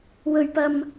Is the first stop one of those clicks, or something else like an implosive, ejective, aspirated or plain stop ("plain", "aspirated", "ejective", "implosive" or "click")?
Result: plain